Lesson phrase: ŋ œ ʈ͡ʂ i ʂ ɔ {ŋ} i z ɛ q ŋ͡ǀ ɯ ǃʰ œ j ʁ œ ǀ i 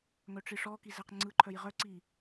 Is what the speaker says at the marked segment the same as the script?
no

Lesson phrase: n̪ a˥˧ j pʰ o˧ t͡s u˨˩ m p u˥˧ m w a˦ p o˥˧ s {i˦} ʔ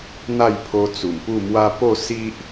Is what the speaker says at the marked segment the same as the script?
yes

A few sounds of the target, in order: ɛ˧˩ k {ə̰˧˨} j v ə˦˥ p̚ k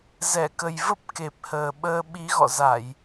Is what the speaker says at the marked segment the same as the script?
no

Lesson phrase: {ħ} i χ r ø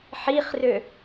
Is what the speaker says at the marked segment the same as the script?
yes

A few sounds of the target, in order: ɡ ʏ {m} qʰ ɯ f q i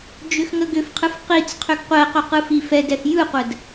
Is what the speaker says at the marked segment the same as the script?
no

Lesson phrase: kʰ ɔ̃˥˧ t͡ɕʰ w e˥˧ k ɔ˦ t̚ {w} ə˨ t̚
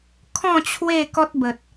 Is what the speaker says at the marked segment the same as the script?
no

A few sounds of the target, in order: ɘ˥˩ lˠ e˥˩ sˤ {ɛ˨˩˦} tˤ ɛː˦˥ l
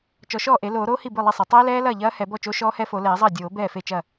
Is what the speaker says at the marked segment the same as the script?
yes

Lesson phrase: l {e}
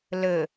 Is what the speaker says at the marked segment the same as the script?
no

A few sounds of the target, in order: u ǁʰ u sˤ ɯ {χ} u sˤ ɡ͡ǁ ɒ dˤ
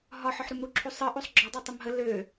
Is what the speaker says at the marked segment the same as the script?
no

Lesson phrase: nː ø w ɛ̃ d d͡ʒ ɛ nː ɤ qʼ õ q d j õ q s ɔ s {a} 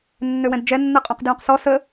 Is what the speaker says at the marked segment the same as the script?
no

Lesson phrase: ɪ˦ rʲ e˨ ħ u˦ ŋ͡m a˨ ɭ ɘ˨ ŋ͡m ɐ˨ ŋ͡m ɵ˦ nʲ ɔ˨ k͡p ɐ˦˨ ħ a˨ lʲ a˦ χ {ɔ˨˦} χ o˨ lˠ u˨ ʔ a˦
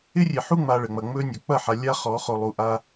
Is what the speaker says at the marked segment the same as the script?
yes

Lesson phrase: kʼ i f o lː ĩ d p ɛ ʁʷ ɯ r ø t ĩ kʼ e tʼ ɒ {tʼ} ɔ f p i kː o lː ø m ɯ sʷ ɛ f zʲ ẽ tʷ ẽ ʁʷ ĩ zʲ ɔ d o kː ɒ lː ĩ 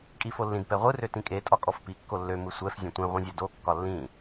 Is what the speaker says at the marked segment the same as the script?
no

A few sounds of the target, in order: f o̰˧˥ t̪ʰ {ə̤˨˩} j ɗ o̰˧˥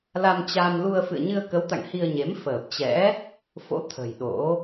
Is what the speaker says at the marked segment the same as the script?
yes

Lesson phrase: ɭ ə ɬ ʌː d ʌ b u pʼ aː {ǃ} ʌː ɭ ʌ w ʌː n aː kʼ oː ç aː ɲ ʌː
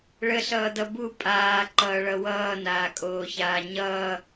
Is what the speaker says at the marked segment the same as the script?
yes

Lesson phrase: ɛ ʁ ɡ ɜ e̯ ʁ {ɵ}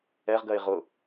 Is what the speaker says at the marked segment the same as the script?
no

